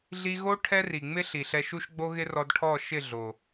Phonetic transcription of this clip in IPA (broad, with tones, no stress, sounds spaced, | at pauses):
ɮ i˧ ɣ o˦ ʈʰ ɛ˦ r i˨ ŋ͡m ɪ˦ ɬ i˨ ɬ ɛ˧ ʃ u˦ ʃ ɡ͡b o˦ ɣ ɪ˦ r ɔ˧ d ʈʰ ɔ˦˨ ʃ ɪ˦˨ ɮ o˨